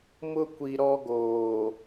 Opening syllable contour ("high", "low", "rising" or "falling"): high